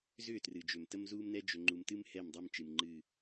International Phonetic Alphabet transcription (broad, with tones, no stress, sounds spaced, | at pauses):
z ʏː˦˨ t r ɨ˨ d͡ʒ ʏː˨ m t ə˦ m z uː˦ m n ɛ˦ d͡ʒ ʏ˨ ŋ͡ǃ u˨ m t ɨ˦ m h ɛ˦˨ m dˤ əː˦ m t͡ʃ ɨ˨ m ŋ͡ǃ ɨː˦˨